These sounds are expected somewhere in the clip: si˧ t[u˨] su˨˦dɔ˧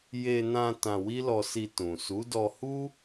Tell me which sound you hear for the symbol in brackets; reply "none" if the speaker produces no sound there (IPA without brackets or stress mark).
ũ˨